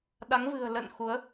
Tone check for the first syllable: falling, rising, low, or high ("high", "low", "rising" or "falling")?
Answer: rising